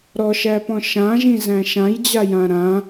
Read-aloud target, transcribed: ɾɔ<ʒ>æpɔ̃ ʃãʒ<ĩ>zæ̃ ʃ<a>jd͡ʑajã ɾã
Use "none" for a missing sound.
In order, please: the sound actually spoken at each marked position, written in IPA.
ʃ, ĩ, ã

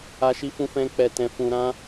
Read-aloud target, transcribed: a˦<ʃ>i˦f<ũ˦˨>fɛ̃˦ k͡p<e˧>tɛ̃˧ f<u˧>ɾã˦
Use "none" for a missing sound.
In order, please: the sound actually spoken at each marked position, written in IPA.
ʃ, ũ˦, ɛ˧, ũ˧

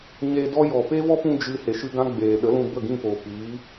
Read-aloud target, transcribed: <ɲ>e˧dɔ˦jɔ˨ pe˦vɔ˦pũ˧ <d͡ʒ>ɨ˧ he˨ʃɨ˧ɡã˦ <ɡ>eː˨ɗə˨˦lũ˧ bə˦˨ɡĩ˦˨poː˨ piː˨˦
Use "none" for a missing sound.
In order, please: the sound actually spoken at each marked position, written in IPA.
ɲ, d͡ʒ, ɡ͡b

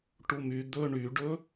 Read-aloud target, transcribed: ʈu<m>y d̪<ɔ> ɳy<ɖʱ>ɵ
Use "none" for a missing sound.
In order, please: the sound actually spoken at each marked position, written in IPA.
m, ɵ, ɖ

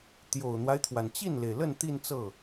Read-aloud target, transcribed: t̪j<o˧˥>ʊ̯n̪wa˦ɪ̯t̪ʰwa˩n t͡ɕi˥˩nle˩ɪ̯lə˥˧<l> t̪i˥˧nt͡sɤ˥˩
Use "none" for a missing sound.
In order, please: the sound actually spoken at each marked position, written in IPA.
o˨˩, n

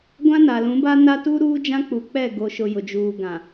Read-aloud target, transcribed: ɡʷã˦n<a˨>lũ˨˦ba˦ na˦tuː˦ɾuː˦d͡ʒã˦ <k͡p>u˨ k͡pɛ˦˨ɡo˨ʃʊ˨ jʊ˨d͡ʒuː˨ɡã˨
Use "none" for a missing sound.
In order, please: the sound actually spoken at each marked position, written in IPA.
a˨, k͡p

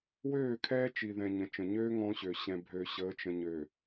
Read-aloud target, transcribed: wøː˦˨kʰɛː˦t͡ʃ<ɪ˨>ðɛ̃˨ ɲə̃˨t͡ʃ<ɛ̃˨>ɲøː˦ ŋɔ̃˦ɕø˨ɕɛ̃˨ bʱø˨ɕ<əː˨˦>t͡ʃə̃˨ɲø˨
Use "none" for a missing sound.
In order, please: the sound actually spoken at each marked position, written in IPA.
i˨, ə̃˨, əː˨˦

